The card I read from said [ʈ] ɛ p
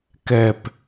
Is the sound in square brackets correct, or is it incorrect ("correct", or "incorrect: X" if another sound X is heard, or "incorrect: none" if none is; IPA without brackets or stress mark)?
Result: incorrect: k